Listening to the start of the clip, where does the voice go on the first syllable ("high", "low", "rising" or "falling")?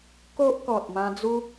high